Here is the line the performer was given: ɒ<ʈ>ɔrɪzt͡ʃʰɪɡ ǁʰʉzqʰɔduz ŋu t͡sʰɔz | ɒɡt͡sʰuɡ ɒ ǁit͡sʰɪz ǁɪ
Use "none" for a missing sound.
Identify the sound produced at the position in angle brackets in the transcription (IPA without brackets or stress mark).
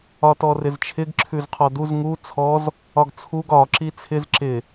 t